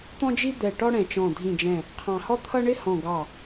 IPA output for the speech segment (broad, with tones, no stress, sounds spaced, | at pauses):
t̪ ɔ̃˥ d͡ʒ i˥ d̪ ɛ˧˩ ʈ ɔ˥ ɽ ɛ̃˧˩ t͡ʃ ɔ̃˧˩ dʱ ĩ˧˩ d͡ʒ ɛ̃˧˩ | qʰ ɑ̃˧˩ h ɔ˥ t̪ʰ ʌ˥ ɳ ɪ˥ h ɔ̃˧˩ ɡ ɑ˧˩